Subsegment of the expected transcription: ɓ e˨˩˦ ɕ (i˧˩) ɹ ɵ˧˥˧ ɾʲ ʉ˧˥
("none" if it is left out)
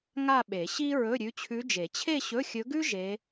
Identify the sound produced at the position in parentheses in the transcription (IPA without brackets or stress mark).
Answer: i˥